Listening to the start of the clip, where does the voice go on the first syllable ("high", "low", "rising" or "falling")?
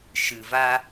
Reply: low